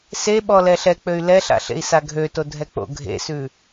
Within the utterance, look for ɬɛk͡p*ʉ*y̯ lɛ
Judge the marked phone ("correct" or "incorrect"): incorrect